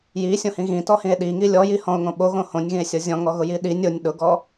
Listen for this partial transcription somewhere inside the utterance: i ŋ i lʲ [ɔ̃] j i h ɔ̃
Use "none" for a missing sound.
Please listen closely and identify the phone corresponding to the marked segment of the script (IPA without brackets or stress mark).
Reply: ɔ